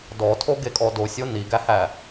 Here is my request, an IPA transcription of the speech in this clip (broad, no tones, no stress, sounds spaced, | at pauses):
d ɔ tʰ o ɡ e kʼ ɔ d o sʲ o n i ɡ æ h æ